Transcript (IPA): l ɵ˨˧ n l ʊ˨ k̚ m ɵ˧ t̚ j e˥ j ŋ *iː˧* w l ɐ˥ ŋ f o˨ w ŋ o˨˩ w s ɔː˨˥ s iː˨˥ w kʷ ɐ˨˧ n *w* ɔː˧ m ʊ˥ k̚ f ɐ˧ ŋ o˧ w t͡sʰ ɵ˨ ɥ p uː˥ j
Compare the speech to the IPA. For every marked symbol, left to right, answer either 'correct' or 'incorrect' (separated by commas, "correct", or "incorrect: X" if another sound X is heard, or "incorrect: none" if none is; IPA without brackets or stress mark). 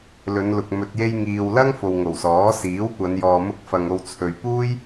correct, incorrect: j